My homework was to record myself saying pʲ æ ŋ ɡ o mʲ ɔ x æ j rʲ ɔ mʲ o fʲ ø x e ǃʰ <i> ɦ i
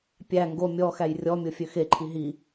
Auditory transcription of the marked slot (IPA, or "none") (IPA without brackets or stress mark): i